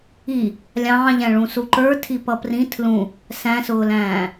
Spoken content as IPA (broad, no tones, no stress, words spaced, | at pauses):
i | lʲɑ̃ːʎæ̃ ɭũsuǃə˞tʰi pʌprĩ tʰlũ | sæ̃sʊːlæ̃ː